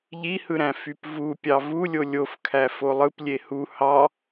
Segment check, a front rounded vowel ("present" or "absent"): present